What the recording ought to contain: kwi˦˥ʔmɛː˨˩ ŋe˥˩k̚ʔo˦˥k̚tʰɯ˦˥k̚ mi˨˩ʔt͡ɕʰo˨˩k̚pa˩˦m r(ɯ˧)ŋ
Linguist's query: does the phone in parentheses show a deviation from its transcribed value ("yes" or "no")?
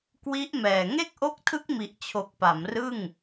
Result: yes